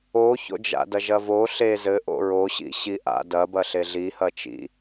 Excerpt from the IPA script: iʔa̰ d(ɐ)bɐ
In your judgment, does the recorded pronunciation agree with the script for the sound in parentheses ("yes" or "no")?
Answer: yes